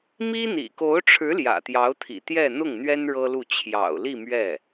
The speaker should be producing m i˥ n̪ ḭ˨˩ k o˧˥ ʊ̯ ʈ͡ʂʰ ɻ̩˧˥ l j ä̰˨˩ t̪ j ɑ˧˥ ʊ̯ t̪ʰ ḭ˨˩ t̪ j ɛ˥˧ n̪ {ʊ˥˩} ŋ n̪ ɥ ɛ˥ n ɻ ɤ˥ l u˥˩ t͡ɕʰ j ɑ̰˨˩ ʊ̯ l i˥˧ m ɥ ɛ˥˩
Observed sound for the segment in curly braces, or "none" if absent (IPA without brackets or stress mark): ʊ˥˩